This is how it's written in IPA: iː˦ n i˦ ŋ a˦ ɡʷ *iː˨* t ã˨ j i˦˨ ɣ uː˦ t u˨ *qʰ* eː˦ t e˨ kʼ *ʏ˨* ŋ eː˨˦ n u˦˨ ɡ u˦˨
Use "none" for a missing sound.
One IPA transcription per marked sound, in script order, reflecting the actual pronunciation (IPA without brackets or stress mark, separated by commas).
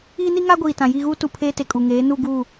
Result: iː˨, pʰ, u˨